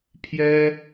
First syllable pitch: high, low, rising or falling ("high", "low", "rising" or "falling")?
high